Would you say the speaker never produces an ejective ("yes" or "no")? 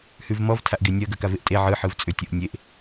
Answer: no